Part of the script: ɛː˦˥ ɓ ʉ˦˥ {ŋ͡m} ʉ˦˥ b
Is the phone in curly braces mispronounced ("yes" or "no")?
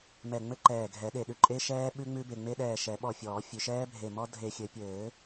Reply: no